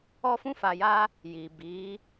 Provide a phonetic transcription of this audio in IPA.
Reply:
ɔ˦fũ˦fa˧ja˦ | ji˨bi˨˦

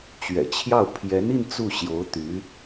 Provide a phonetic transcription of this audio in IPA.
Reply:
t͡ɕɥɛ̰˨˩t͡ɕʰjɑ˥˩ʊ̯ pʰjɛ˧˥ni˥˧n t͡su˥˩ ɕjo˧˥ʊ̯t̪y˧˥

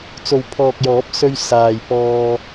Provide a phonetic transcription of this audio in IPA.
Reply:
t͡so˨wpʰɔː˨k̚jɔː˨˥p̚sɵ˧ɥ saː˨jpɔː˧

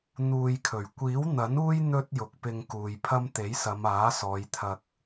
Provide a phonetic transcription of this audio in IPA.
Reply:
n̪uː˧jkʰɵ˨˩ɥ kʷiː˨˥wn̪ɐ˨˥nuː˥j n̪ɵ˥t̚jʊ˨k̚pɪ˧ŋ kuː˨jpʰɐ˥m t̪e˨˥jsɐ˨˧maː˨˥ sɔː˨˧jt̪ʰɐ˧k̚

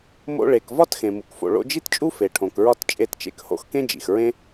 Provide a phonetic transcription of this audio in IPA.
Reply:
mo̰˧ɭe˩kvɒ˥t xẽ˩mu˩kfo̰˩ ɭo̰˧d͡ʒi˥tt͡ʃʼu˥ fe˩ʈʰõ˩kɹɒ˧t t͡ʃʼe˧tt͡ʃḛ˧kho̰˧x kẽ˥d͡ʒḭ˩x ɹẽ˥

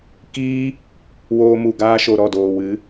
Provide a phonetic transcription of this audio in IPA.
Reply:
kiː˦ | woː˧mu˨ɡaː˧ʃo˨ ɾɔ˦˨doː˨wɨ˨˦

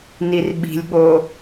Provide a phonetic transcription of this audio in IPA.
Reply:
nirɓi̤lʲɠo

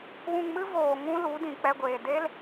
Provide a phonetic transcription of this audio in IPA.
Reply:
wũ˧ŋmɨ˦ voː˨ ŋũ˦ lu˨˦dĩ˨k͡pɛ˧ɡʷeː˨ de˦l

